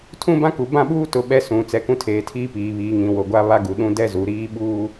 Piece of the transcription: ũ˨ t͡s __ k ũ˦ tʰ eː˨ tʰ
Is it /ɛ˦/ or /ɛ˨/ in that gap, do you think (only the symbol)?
ɛ˨